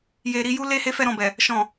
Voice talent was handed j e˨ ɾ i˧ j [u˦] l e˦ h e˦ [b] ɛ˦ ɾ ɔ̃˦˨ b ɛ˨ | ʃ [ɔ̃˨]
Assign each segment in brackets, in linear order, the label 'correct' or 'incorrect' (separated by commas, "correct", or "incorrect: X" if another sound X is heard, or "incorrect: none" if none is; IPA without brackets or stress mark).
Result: correct, incorrect: f, correct